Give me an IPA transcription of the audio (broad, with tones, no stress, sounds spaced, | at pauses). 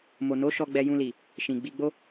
m o˨ n o˨˦ ʃ ɔ˧ ɡ͡b ɛ˧ j ũ˧ l i˨ | ʃ ĩ˨ ɡ͡b i˧ ɡ͡b o˦